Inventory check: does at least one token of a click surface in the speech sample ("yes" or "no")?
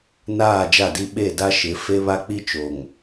no